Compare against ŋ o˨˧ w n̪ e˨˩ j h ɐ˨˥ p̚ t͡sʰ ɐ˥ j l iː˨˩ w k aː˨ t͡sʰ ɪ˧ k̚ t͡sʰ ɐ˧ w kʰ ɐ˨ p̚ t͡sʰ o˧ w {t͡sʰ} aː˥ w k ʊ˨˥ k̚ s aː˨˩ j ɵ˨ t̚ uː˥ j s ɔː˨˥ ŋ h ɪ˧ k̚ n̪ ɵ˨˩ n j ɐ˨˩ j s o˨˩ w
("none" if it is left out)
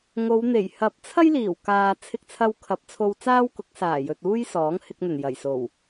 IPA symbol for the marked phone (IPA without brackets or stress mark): t͡s